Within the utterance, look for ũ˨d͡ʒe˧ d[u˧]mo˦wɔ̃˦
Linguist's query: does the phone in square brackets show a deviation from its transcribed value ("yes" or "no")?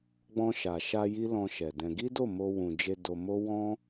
yes